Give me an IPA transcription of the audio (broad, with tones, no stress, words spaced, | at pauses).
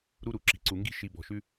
ɾu˧ɾu˨ ǁi̤˨ǀu˨ŋɡi̤˧ʃi˨ bɔ̤˨ʃʉ˧